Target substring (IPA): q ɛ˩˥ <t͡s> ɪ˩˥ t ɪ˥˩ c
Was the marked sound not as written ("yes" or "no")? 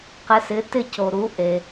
yes